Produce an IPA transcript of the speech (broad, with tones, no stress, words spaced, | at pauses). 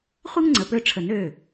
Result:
χʷɯ˥ŋŋ͡ǀə˩˧˩pø˦˨ʈ͡ʂʰə˨˩˦n ø˩˧˩